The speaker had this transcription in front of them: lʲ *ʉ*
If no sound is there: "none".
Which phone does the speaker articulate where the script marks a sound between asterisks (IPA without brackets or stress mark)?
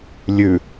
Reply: ʉ